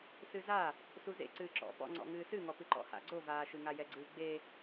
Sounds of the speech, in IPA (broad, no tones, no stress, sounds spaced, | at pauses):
s ɨ z a | s u z ḛ ǀ ɨː ǁ ɔ̰ p ɔ̰ ŋ͡ǀ ɔ̰ ŋ ɨː s ɨ ŋ ɔ p ɨ ǃ ɔ̰ h a̰ ɡ͡ǀ o v aː ʃ ɨ ŋ a j ɛ ɡ͡ǀ ɨː ɡ͡b e